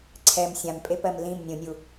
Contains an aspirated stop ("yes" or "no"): yes